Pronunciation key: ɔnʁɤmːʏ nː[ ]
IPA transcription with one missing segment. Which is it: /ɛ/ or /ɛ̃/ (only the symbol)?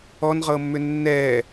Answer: ɛ